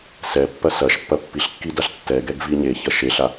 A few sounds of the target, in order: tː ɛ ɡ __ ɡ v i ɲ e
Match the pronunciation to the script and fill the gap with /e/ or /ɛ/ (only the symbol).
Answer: ɛ